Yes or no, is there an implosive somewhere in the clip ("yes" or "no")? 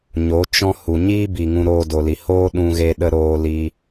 yes